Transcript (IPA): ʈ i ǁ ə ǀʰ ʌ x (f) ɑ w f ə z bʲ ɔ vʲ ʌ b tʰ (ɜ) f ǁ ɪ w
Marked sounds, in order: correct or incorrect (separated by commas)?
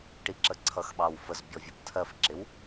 incorrect, correct